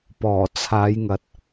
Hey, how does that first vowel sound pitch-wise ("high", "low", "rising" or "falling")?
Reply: low